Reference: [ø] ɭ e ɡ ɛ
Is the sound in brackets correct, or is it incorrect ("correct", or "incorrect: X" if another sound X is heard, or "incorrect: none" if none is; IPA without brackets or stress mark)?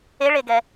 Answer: incorrect: e